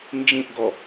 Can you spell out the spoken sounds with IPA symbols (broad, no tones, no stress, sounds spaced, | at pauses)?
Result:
n d͡ʒ ĩ ʔ ɡ ɔ